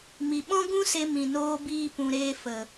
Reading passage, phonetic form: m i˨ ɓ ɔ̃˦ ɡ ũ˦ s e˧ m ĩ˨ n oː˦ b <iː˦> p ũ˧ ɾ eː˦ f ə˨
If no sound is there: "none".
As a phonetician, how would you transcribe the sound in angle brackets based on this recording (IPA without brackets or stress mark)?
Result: iː˦